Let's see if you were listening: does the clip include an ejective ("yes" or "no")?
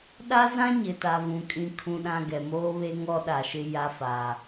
yes